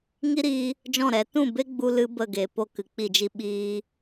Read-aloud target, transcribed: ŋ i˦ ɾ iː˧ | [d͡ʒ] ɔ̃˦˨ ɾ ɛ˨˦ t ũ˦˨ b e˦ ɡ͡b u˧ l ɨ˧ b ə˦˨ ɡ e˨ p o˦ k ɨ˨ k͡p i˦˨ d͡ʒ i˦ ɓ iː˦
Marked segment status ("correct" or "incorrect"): correct